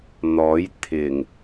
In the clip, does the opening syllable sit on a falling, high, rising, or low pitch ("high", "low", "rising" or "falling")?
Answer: rising